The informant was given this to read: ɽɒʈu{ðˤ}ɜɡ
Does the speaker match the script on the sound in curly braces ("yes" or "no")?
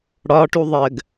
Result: yes